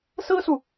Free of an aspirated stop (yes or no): yes